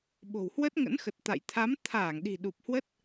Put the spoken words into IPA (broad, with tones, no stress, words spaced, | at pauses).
ɓo̤˨˩whwə˦˥t̚ ŋə̰˧˥nxə˨˩t̚ t̪a̰˧˨j t̪ʰa˨˦mt̪ʰaː˧˩ŋɗi̤˨˩ ɗu˨˩p̚hwə˦˥t̚